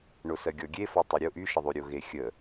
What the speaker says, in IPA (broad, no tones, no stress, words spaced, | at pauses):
ɳosɜɡʲɔɡʲe fɔtˤeɾʲo ʔyʃəðˤy ɾʲoɣexʲə